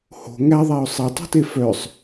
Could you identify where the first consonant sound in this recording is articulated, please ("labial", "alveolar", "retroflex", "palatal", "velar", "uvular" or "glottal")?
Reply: glottal